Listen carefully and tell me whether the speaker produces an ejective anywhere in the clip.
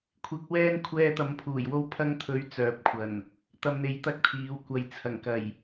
no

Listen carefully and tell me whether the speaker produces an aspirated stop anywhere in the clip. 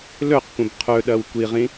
yes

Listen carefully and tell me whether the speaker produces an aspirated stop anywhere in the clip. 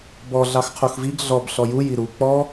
yes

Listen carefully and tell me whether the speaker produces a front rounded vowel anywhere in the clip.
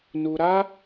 no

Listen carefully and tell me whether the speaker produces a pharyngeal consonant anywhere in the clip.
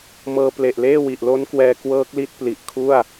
no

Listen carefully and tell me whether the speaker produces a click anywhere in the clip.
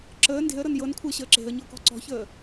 yes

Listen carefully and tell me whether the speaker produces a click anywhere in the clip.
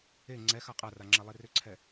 yes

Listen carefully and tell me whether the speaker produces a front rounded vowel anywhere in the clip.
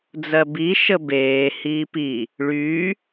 yes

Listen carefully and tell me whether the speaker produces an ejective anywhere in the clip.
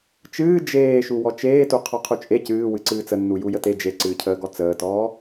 yes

